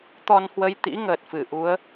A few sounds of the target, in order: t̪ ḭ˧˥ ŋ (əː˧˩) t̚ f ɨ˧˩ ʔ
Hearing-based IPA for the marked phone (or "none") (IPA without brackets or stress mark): əː˨˩